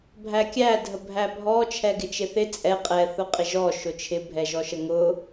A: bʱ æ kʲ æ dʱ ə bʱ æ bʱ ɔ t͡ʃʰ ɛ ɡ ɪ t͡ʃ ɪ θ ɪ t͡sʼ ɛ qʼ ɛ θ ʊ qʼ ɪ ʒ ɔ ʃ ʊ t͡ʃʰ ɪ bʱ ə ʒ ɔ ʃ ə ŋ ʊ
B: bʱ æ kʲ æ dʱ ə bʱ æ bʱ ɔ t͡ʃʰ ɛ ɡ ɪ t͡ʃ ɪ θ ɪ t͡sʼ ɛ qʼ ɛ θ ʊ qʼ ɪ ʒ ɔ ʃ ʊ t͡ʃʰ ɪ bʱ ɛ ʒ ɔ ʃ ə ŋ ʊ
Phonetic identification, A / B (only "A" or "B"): B